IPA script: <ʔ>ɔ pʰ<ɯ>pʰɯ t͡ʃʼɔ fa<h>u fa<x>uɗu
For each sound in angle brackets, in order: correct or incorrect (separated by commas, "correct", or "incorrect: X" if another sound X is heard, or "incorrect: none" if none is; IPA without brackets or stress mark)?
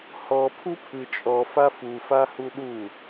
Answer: incorrect: h, incorrect: u, incorrect: f, incorrect: h